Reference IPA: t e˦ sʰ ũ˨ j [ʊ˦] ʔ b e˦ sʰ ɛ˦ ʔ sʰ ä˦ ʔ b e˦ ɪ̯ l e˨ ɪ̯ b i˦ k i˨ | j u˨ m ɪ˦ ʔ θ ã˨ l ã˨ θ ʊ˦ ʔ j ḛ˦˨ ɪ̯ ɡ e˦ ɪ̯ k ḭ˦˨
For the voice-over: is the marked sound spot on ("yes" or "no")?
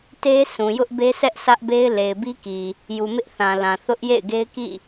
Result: yes